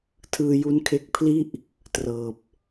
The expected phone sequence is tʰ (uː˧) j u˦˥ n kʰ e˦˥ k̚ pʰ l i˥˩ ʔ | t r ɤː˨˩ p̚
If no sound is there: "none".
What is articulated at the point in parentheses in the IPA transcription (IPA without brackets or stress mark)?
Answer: ɯː˧